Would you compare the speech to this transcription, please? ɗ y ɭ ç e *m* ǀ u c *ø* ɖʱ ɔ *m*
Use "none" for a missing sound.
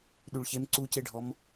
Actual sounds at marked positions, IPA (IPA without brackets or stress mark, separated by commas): m, e, m